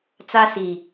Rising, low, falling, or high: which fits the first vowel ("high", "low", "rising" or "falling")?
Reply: high